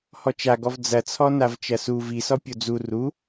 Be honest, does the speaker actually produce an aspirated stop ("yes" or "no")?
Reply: yes